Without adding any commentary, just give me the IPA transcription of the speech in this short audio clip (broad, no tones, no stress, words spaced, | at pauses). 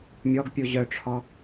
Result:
mʲɔɡ pʲuʑœʈ͡ʂʰɔ